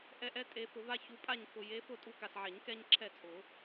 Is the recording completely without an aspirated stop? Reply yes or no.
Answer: no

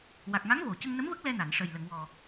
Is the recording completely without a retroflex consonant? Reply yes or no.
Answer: no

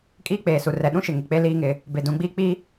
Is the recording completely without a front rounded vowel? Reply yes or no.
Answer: yes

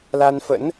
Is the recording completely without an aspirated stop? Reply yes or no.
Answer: yes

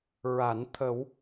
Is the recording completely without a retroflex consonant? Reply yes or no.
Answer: yes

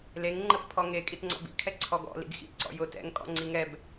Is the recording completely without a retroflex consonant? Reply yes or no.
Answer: yes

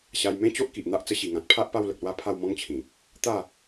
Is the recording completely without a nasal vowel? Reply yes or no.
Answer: no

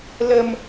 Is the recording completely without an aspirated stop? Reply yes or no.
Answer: yes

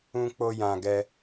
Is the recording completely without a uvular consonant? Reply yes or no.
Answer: yes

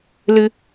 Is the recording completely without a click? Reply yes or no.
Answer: yes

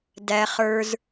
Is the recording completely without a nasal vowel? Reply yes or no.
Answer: yes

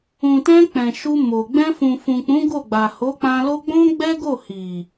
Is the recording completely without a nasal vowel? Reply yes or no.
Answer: no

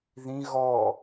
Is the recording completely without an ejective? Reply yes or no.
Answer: yes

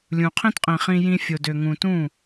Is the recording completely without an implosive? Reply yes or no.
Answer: yes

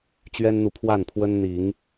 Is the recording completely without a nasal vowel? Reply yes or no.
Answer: yes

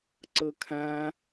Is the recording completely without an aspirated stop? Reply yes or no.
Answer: no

